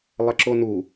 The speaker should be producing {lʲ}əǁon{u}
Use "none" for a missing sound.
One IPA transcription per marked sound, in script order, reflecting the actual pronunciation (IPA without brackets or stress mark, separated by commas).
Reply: lˠ, u